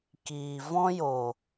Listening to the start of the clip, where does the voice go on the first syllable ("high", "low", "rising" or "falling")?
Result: low